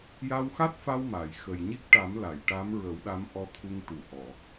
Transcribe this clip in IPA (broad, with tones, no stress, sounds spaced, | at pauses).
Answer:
j a˧ w x a˦˥ t̚ f a˧ w m a˨˩˨ j x ə˨˩ j ɲ i˦˥ k̚ ʈ a˨˩˦ m l a˨˩˨ j ʈ a˧˥ m ɹ ə˨˩˦ w ɗ a˧˥ m ʔ ɔ˧ t̪ʰ u˧ ŋ t̪ u˨˩ ʔ ɔ˨˩˨